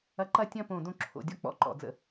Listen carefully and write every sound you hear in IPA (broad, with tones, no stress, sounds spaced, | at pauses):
ɐ˧ ǃ ɐ˥˧ tʲ ɐ̃˥˧ p õ˧˩ d õ˥ ǁʰ o̰˩˧ dʲ ɔ˥ k͡p ɔ̰˥ ǃ ɔ̰˩˧ d͡z ə̰˧